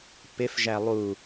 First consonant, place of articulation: labial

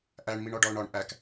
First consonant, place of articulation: glottal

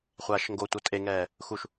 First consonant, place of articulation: uvular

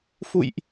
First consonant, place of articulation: labial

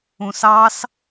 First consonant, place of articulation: alveolar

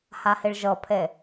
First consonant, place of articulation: glottal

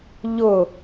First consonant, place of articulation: palatal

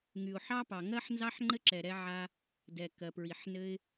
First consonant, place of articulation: velar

